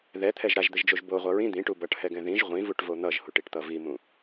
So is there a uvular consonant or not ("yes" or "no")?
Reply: yes